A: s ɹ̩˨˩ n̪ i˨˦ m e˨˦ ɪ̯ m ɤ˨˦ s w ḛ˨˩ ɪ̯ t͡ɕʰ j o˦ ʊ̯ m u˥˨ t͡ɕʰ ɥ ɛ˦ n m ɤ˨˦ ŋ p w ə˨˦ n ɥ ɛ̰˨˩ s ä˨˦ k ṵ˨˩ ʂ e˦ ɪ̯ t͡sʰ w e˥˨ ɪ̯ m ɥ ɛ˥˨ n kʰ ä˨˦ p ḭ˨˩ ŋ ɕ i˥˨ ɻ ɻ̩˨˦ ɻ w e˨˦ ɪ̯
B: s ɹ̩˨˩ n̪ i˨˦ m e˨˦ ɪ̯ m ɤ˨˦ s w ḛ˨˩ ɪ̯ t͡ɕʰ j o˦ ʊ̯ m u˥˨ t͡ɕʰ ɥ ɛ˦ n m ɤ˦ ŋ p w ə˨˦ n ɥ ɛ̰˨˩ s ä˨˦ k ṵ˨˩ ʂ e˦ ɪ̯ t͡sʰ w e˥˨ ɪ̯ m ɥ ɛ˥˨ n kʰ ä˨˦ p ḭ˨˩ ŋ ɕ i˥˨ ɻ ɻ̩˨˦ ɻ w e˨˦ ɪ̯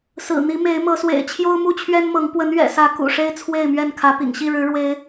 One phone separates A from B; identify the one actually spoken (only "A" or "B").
A